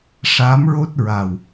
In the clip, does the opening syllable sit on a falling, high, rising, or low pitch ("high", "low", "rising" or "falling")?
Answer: rising